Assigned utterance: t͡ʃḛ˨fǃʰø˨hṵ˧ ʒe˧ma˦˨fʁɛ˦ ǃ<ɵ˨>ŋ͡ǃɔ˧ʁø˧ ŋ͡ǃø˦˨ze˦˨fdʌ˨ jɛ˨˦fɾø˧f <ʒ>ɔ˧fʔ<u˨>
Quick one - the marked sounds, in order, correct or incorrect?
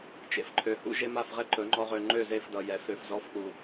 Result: incorrect: ɵ˨˦, incorrect: z, correct

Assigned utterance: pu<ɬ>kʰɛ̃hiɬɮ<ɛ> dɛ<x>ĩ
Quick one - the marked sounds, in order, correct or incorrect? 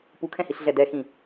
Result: incorrect: none, correct, correct

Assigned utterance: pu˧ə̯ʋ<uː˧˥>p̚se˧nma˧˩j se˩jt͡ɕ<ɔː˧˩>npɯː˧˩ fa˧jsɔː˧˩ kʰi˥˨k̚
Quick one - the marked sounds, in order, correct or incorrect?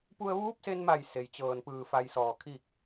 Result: correct, incorrect: ɤː˧˩

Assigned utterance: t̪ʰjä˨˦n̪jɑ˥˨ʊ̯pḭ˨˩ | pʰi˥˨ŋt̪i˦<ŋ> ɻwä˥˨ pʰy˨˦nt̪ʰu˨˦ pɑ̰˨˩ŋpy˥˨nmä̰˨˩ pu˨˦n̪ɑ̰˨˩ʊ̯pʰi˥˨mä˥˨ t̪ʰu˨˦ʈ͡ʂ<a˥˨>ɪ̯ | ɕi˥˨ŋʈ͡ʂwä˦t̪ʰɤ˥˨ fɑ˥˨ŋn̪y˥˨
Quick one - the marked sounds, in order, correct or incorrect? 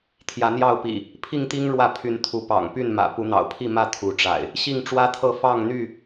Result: correct, incorrect: a̰˨˩

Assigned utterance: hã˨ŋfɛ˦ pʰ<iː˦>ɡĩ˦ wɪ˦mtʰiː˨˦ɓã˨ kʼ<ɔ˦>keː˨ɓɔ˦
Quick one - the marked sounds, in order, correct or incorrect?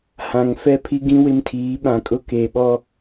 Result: incorrect: i˦, incorrect: ʊ˦

